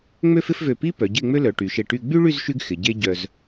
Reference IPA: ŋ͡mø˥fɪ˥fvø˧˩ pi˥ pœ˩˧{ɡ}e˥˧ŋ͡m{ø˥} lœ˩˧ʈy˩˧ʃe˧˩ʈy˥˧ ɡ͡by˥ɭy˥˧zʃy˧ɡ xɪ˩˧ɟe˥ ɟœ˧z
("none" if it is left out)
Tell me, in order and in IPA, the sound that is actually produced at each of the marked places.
ɟ, ø˥

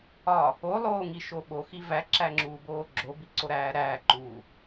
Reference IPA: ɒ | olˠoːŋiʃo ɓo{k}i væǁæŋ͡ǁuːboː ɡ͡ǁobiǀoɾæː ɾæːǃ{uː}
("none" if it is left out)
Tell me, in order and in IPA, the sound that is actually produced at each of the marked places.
x, uː

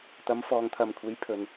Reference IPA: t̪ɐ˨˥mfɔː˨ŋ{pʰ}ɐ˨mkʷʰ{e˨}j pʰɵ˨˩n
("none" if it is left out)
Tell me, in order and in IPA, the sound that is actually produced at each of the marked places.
t̪ʰ, e˨˥

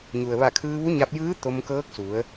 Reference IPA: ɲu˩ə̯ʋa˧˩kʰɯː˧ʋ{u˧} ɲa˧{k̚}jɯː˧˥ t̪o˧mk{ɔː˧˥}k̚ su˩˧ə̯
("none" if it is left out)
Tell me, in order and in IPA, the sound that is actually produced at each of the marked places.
u˧˥, p̚, ɤː˧˥

